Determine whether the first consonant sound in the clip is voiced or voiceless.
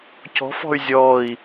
voiceless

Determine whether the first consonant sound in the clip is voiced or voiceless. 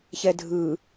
voiceless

